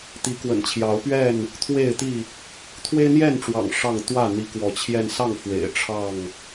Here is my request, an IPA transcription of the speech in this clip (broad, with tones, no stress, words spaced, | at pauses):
t̪i˨˦kwə̰˨˩nt͡ɕʰjɑ˨˦ʊ̯pɥɛ˥˨n | t̪ʰwe˥˨ɪ̯t̪i˥˨ | t̪ʰwe˦ɪ̯n̪jɛ˥˨nʈ͡ʂwɑ̰˨˩ŋ ʂɑ˥˨ŋ t̪wä˥˨ n̪i˨˦kwɔ˨˦t͡ɕʰjɛ˧nsɑ˥˨ŋ fwḛ˨˩ɪ̯ ʈ͡ʂʰɑ˥˨ŋ